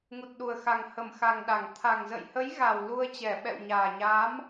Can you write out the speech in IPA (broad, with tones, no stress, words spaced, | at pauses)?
ŋu˨˩t̚ɗu˨˩ə̯ xa˨˩ŋhə˧˩mxa˨˩ŋ ɗa˧˩ŋ t̪ʰa˨˩ŋzə̰˧˨jhə˨˦jɣa˨˩w lu˧ə̯t͡ɕɛ˧˩ ɓɛ̰˧˨wɲaː˨˩ɲaː˨˦m